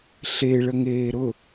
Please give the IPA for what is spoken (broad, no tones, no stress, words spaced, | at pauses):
ɬe ɭəŋeːɾʊ